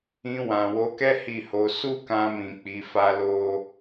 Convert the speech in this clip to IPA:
ĩ˧ w ã˨ w o˨˦ k ɛ˦ h i˦˨ h o˧ s u˦ k ã˧ m ĩ˨ k͡p i˨˦ f a˦ l o˦

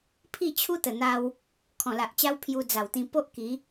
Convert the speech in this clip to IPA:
pʰ i˥˧ t͡ɕʰ u˦ t̪ ə˨˩ n̪ a˧ w | kʰ ɔ̃˨˩ l a˨ ʔ t͡ɕ a˦ w pʰ j u˧ d͡z a˨˩ w t̪ ĩ˧ p o˦ ʔ k i˨˦

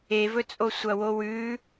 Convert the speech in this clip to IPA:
e v ɵ t͡sʼ o sʷ ɐ w o w ʉ

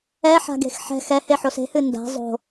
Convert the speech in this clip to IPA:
ɛ ħ a̤ ɡ e̤ x ħ ɛ̤ x ɛ h e ħ o s e̤ h ɨ n d a̤ zˤ o̤

